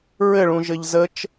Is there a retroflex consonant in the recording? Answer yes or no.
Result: yes